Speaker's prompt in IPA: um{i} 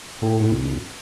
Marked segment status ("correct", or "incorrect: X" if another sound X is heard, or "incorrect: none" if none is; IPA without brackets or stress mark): incorrect: ḭ